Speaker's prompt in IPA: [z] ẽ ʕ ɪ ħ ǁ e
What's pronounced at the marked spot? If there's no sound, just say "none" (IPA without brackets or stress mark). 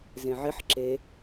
z